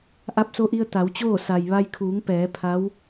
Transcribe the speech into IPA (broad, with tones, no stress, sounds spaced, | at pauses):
ʔ a˧ p̚ s o˧ ʔ i˧ ə̯ t̪ a˩˧ w t͡ɕ oː˥˨ s a˩ j ʋ a˧ j kʰ uː˩˧ ŋ p ɛː˩˧ pʰ a˧˥ w